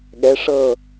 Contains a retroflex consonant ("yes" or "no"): yes